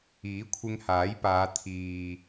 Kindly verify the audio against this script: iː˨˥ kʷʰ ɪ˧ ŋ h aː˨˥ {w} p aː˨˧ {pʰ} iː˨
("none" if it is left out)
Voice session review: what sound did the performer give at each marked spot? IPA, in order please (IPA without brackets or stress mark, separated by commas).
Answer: j, t̪ʰ